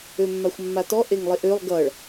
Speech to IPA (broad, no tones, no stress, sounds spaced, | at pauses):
ø mː a xʷ mː a t ɔ ʔ e ŋ lˠ e ʔ ø lˠ ɡ ʌ ɭ